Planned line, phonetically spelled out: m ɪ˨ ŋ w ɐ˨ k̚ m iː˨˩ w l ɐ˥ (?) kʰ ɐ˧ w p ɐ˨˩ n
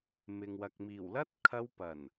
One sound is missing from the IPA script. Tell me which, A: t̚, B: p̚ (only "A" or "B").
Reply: A